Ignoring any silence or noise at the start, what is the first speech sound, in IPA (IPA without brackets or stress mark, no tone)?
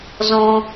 z